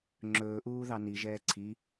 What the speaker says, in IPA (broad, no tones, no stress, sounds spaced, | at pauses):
ŋ͡ǁ ɵː ʔ uː ð ɑ n i ʒ ɛː ǀʰ i